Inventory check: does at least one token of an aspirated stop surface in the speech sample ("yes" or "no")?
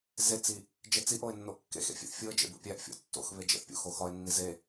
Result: no